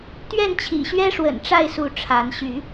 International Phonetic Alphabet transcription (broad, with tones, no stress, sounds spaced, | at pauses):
t̪ ɥ ɛ˥˨ n t͡ɕʰ ḭ˨˩ ɕ ɥ ɛ˦ ʂ w ə̰˨˩ n ʈ͡ʂ a˥˨ ɪ̯ s u˨˦ ʈ͡ʂʰ a˨˦ n ɕ y˨˦